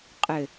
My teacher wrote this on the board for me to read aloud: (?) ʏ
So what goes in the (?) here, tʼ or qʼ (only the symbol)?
qʼ